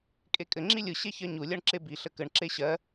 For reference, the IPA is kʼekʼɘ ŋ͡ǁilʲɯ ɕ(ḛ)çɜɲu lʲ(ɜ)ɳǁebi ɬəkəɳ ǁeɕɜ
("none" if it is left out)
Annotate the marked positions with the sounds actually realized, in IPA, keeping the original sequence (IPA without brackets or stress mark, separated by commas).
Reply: e, ɜ